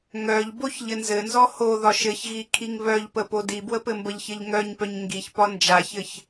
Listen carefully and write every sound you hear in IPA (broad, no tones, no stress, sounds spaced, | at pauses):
ŋ œ ʎ b o ç ʎ ɘ n z ɘ n z ɔ h o ð ɒ ʃ ɘ ç ɣ i kʰ i ŋ β œ ʎ p ə p o d i b w ə p ɘ m b ə ʎ ç ɘ ʎ ŋ œ ɲ p œ ɲ ŋ ɡ i ç p ɒ n d͡ʒ a ç ɘ ç